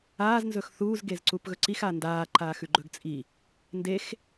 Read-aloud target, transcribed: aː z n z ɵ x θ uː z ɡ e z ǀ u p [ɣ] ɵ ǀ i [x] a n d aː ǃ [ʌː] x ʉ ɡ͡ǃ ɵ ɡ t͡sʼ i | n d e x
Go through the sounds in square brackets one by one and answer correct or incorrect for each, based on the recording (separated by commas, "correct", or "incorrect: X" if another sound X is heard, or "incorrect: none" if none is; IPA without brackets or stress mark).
correct, correct, incorrect: aː